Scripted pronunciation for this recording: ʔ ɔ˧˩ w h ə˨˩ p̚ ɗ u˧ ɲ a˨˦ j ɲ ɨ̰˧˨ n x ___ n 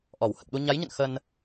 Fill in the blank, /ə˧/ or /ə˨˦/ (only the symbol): ə˧